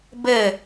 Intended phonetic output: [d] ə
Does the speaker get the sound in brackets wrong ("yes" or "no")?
yes